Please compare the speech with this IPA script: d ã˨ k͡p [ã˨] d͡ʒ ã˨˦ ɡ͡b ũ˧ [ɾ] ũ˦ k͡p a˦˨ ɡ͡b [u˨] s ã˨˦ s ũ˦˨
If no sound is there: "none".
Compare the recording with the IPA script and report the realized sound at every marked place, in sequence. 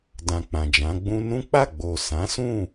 ã˨, n, o˨

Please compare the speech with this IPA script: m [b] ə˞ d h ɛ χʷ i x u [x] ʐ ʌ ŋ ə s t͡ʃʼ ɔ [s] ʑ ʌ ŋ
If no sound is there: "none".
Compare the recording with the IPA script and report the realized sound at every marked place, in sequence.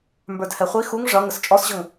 b, ŋ, s

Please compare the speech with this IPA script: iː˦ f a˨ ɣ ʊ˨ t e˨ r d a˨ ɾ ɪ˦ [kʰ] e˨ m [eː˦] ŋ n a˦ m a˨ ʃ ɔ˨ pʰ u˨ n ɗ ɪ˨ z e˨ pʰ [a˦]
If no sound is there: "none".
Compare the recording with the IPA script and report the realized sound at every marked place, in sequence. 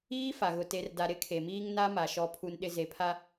kʰ, iː˦, a˦

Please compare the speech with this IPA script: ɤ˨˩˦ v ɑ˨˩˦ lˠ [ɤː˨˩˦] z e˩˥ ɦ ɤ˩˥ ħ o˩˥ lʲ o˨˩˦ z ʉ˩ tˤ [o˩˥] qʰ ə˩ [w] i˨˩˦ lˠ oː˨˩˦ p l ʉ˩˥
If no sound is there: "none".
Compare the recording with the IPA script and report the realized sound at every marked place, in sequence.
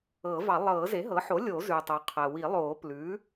ɤː˨˩˦, o˩, w

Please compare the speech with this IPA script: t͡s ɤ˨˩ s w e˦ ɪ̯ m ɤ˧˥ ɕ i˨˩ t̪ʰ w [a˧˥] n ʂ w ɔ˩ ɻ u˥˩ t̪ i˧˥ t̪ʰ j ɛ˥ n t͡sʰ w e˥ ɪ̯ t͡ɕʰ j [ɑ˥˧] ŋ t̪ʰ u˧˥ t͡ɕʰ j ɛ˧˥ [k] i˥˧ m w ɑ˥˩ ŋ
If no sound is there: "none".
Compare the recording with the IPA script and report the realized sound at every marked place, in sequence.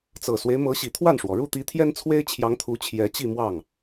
a˥˩, ɑ˧˥, t͡ɕ

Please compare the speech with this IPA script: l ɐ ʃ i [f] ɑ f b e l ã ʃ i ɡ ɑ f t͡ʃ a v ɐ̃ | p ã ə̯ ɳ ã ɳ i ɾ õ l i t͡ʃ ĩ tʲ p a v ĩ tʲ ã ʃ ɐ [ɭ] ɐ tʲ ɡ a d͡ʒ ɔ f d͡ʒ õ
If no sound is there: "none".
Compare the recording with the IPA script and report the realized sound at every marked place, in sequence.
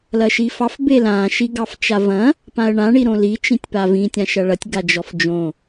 f, ɭ

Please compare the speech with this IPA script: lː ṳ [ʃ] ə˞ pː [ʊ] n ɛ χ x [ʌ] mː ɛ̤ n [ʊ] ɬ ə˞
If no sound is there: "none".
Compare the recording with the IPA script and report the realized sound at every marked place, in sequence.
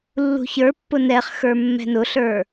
ç, ʊ, ə˞, ʊ

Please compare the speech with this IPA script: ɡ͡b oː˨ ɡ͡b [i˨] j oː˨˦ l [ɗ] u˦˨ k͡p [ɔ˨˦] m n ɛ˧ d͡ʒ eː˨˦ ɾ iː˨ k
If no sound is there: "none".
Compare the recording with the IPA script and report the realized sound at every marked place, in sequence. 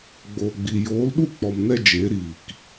i˨, ɗ, ɔ˨

